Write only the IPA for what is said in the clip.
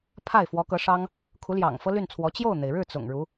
pʰ a˥˩ ɪ̯ f w ɔ˧˥ k ɤ˧˥ ʂ ɑ˥ ŋ | kʰ u˧˥ l j ɑ̰˨˩ ŋ f ɤ˥ l y˥˩ n t͡sʰ w ɔ˧˥ t͡ɕ j o˥˩ ʊ̯ n̪ e˩ ɪ̯ ɻ ɻ̩˥˩ t͡s ʊ̰˨˩ ŋ ɻ u˧˥

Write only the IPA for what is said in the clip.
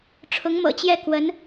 ʈ͡ʂʰ ʊ˧˥ ŋ m ɤ̰˨˩ t͡ɕ j ɛ˥˩ k w ə˧˥ n

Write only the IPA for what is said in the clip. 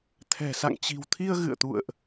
t̪ʰ ɛ̤˨˩ s a̰˧˨ ŋ t͡ɕ i̤˨˩ w t̪ʰ i˧ ə̯ ɣ ɨ̰˧˨ ə̯ t̪ ṵ˧˨ ə̯ ʔ

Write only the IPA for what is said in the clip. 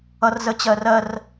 ʌ r z ə t͡ɕ ɜ r ɜ r

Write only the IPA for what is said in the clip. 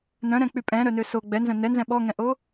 n œ̃ ɾ ɛ̃ k͡p y pʼ ɛ̃ ɾ œ n ø s o ɡ͡b ɛ n z œ̃ n ɛ n z ɛ̃ ɓ ɔ ŋ ɛ̃ ʔ o

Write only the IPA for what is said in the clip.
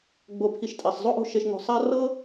ɡ͡b o˨ pʰ i˨ ʃ tʼ ɛ˩ sˤ zˤ o˥ ʔ o̤˦ ʃ e˨ ʃ ŋ o̤˨ sˤ a˦ r ɤ˥

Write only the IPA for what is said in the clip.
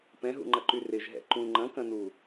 p ɛ̃ ɦ ṵ ŋ͡ǃ ɐ ǃ y r ɪ ʒ ɦ ɛ̰ ǃ ũ ŋ͡ǃ ɐ̃ k ɐ̃ n u

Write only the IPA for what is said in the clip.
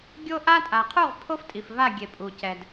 ɡʲ o˦ ʔ a˦ tʼ a˨ qʰ u˦˨ ʁ pʰ o˦ f tʼ i˨ f v a˦˨ ɡʲ e˨ pʼ u˨ c ɛ˨ d

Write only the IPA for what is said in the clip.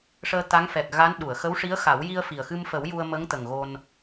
ʂ əː˧ t̪ a˧˥ ŋ f ɛ˨˩ k̚ ɣ a˧˥ n ɗ u˨˩˨ ə̯ x ə˧˥ w ʂ i˧˥ ə̯ x a˨˩˦ w j i˧ ə̯ f i˨˩ ə̯ x ɨ˧ m f ə˨˩˦ w j u˧ ə̯ m ə˧˥ ŋ t̪ ə˨˩ ŋ ɣ o˧ n

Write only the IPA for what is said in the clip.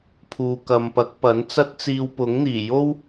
pʰ uː˨ k ɐ˨ m p ɐ˨˥ k̚ p ɐ˨˥ n t͡s ɐ˥ t̚ t͡s iː˧ w p ʊ˨˥ ŋ n̪ iː˨˩ j o˥ w

